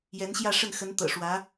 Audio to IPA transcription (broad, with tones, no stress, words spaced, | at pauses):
jɛ˧˥nɕjä˥˧ʂə˥˩n xə˧˥n t̪ɤ̰˨˩ʂwä˧˥